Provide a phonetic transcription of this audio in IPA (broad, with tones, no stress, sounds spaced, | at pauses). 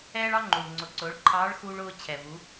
ɛː˥ ɭ ɑ˥ ŋ͡ǃ u˩ ɭ ŋ͡ǀ ʊ˩˧ ǀ ʊː˩˧ ɭ ǃʰ ɑː˧˥ ɭ x uː˧ ɭ ʊː˧ t͡ɕʰ ɛ˩ v u˩˧